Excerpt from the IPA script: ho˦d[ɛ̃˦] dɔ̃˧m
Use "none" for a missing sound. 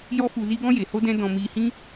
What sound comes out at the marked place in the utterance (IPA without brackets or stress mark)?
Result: ɛ̃˦